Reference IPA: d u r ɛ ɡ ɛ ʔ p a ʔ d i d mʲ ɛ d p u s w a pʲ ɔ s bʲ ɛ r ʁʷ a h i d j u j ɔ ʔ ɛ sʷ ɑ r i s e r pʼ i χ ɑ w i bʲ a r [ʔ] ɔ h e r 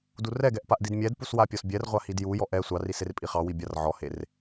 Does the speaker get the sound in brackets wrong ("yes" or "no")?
yes